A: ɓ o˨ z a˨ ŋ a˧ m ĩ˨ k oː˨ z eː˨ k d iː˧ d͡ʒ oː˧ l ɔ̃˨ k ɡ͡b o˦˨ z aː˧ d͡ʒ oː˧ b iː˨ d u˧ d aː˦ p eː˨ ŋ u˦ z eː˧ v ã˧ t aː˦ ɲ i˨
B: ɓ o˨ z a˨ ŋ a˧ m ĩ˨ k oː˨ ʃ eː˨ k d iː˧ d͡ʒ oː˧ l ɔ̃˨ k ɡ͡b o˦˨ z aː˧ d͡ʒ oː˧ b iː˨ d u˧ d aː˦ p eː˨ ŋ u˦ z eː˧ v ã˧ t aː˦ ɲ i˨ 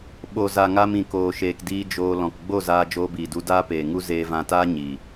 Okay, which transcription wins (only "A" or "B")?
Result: B